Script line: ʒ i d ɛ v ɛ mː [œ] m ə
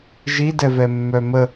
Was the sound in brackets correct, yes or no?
yes